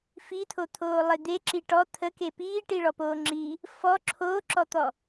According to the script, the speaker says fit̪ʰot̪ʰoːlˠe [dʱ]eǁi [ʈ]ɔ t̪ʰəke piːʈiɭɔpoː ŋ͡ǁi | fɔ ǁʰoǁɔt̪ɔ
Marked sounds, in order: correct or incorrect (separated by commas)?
incorrect, correct